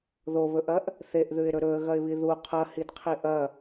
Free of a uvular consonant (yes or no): no